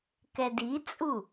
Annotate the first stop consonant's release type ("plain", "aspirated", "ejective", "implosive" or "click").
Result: plain